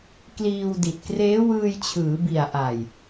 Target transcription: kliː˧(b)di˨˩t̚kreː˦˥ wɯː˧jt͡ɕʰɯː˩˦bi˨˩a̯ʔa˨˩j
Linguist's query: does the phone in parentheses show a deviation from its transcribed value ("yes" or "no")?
yes